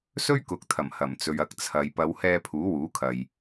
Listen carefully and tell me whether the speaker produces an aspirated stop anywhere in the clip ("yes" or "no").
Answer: yes